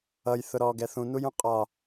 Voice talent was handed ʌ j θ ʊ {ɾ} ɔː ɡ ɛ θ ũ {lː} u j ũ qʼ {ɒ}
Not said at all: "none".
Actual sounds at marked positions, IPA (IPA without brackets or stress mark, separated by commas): ɾ, n, ɒ